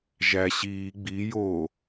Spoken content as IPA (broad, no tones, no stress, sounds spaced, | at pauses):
ʒ æ ɕ iː ɡ͡b i j o